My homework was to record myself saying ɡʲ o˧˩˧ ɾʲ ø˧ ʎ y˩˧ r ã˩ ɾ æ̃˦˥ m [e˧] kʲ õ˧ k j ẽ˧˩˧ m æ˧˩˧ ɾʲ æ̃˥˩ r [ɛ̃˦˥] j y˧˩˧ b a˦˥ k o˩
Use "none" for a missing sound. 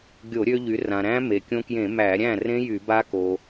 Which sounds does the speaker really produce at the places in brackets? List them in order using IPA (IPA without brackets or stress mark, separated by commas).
e˩, ẽ˦˥